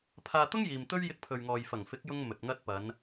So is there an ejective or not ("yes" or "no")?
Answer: no